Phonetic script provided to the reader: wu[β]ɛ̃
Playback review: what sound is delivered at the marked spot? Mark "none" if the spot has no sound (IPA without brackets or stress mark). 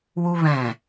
β